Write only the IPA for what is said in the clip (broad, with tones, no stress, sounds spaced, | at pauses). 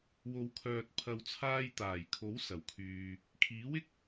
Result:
w o˨˧ w kʰ œː˨ t̚ pʰ ɐ˨ w t͡sʰ aː˧ j t̪ aː˨˩ j kʰ o˨˥ w s ɐ˨˩ w kʰ yː˨ | kʰ iː˨˥ w ɪ˥ k̚